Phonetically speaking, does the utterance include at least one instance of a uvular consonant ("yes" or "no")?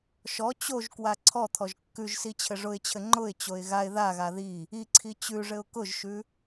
no